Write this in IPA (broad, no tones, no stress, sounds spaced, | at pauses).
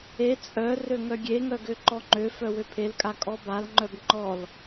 e t͡sʼ œ r ø ŋ œ ɡʲ e ŋ œ ɡ ø ǃ ɔ ŋ͡ǃ ø f œ w ø pʰ e l kʼ a kʼ ɔ b a l ŋ͡ǃ œ b ŋ͡ǃ ɔ l